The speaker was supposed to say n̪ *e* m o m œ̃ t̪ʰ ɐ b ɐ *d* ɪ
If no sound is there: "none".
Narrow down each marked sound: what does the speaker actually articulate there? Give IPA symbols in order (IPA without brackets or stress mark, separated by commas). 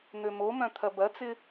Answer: ø, t͡s